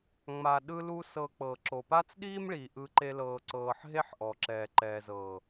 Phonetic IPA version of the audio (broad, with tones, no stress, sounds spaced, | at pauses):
ŋ͡m a˨ ɗ ɯ˦ l u˦ s ɤ˧ k͡p ɤ˨ ǁ o˨ p a˦ t͡s ɗ iː˦ m ɭ i˨ ʔ ɯ˧ ǃ e˧ l ɤː˧ ǀ ɤː˧ ħ ɦ e˦ ħ ʔ ɔ˨ ǁ ɛː˨ ǃ ɛː˨ z ɤː˨